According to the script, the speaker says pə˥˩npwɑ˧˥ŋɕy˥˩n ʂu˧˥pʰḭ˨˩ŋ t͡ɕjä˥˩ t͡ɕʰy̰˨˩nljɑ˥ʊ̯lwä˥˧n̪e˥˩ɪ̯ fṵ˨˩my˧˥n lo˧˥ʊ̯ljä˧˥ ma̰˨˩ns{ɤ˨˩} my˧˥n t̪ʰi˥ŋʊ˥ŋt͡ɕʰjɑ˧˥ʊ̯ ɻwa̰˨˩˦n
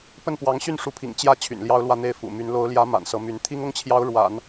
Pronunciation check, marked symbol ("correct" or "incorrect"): incorrect